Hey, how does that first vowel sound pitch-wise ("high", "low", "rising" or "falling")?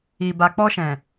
low